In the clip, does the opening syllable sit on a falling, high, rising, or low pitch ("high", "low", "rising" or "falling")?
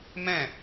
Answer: falling